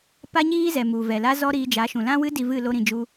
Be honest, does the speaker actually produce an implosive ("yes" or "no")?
no